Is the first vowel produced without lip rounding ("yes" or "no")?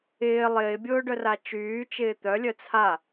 yes